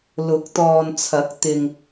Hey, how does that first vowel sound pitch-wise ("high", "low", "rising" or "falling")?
rising